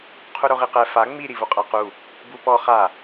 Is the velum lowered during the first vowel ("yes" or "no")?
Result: no